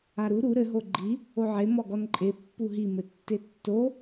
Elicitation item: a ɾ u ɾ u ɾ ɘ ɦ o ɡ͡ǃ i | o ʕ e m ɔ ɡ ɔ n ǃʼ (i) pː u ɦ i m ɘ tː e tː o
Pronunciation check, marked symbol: incorrect: e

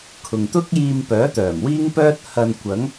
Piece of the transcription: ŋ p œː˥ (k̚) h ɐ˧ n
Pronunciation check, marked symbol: incorrect: t̚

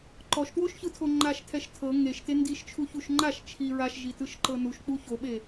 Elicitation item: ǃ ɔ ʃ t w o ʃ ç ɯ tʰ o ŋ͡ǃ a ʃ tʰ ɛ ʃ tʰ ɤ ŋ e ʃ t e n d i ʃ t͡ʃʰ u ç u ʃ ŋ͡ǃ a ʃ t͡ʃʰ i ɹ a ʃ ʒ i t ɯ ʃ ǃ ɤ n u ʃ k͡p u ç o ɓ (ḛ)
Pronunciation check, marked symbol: incorrect: e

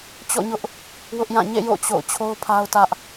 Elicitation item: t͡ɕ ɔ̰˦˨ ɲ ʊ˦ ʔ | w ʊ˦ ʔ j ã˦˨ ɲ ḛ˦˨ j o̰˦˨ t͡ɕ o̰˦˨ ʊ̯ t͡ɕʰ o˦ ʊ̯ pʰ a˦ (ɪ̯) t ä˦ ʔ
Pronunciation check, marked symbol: incorrect: ʊ̯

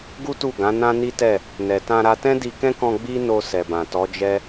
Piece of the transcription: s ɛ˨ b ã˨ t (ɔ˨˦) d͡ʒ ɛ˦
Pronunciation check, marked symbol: correct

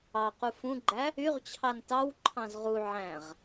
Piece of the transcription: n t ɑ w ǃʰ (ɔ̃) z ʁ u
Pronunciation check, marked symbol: incorrect: ɑ̃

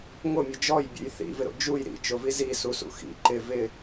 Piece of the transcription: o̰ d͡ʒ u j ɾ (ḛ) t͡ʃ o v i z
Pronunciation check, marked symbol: incorrect: ḭ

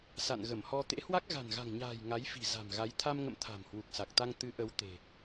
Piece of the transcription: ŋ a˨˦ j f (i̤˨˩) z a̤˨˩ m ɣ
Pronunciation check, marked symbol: correct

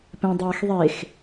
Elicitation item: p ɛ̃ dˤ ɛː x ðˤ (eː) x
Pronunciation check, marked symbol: incorrect: e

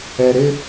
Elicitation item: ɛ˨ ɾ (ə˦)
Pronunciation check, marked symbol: incorrect: ɪ˦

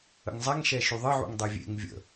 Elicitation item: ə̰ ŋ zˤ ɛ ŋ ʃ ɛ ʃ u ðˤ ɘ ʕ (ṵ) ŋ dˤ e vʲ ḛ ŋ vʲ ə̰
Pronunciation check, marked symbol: correct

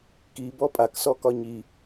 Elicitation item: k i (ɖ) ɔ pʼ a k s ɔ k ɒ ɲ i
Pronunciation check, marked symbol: incorrect: b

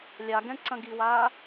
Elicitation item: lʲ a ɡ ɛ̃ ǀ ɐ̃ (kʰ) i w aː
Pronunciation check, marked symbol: incorrect: ɡ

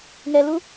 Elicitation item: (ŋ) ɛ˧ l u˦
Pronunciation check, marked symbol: correct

